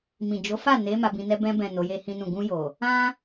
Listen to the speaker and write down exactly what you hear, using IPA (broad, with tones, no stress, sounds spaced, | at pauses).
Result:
m ĩ˨ d͡ʒ o˨˦ f a˦˨ n e˨˦ m a˧ b ĩ˧ n ɛ˧ b ɛ̃˧ b ɛ̃˨ n o˨˦ j e˦ h ĩ˦ n ũ˦˨ ɡ ũ˧ j o˨ | ã˦